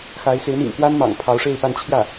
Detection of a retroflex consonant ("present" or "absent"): present